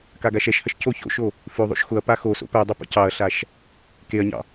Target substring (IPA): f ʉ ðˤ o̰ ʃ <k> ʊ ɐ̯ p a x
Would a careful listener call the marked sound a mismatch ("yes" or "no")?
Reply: yes